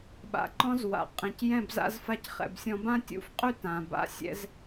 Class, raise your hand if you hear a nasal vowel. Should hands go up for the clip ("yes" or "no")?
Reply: yes